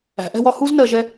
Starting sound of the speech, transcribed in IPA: æ̤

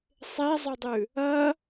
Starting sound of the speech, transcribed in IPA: sˤ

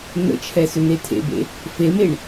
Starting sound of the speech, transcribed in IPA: n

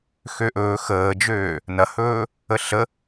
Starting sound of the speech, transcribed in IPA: x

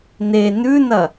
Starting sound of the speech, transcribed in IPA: n̪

